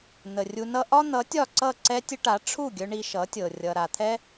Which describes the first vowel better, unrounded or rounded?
unrounded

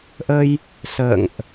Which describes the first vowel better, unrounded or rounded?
unrounded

